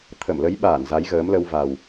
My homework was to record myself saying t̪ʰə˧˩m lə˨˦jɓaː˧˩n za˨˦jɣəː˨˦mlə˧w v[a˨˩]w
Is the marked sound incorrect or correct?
correct